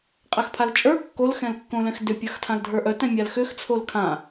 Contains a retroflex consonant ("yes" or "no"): no